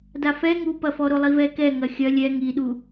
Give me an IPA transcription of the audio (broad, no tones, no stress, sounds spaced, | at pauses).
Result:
d a f ɛ ŋ u p ɐ f ɔ ɾ o lˠ i v ɛ k ɛ ŋ ɐ xʲ ɐ lʲ ɛ ŋ i ɗ u